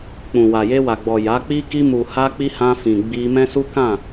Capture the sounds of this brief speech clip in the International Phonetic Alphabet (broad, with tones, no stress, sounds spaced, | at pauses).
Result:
k͡p ũ˨ w a˨ j e˧ w a˨ ɡ͡b ɔ˨ j a˨˦ k͡p i˦ k i˧ m u˨ h a˧ k͡p i˧ h ã˧ f ĩ˨ ɡ͡b i˧ m ɛ̃˦ s u˦ k ã˦˨